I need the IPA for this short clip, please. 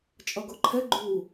t͡ʃʼ ʌ ɡ o ǃʰ ɛ ɡ͡ǃ u

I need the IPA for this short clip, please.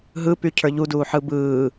ɦ ɯ p y cʰ ə˞ ʎ u d uː ħ ɯ b ɯː

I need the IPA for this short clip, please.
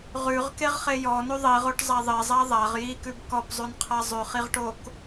ʁ ʉ ʁ k e ʁ χ e j ɔ n ʉ ðˤ i ʁ o ʈ zˤ a ðˤ e zˤ a ðˤ a ʁ j i k ʉ b k ɔ p zˤ ʉ n qʰ a zˤ ʉ χ i ʁ ʈ o k

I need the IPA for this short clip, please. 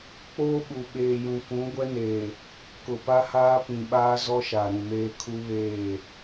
k͡p oː˦ ɓ u˨ ɓ eː˨ j ũ˨ k ũ˨˦ ɡʷ ɛ˦ n eː˨ | k ʊ˨ p a˦ h aː˦ p ĩ˨ ɓ aː˦ z ɔ˦ ʃ a˨ ɾ ũ˨ m eː˦ kʰ u˦ β eː˦˨

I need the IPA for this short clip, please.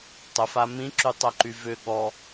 tˤ ə f a m ĩ ǁ y tˤ œ ǃ y v ʏ ɠ ɔ

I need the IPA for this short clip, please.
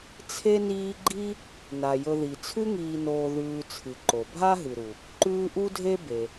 t͡sʰ e˦ n iː˦ ɡ͡ǃ i˦ | n a˩ j ɵ˨ ð i˩ t͡sʰ ʉ˦ ŋ iː˨ n oː˨ ð ʉː˨ t͡sʰ ɨ˩ ǃ o˩ bʱ a˥ ɦ ɨ˩ ɾ u˩ | ǃ ʉː˦ ʔ u˥ dʱ e˥ b e˩

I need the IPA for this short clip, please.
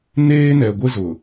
n eː˦ n ɛ˨ ɡʷ ɪ˦ z ʊ˨

